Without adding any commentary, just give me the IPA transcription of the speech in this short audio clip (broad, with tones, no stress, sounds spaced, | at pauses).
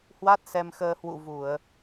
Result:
h w a˦˥ t̚ s ɛ˧ m x əː˧ h w ṵ˧˨ v u˧˩˨ ə̯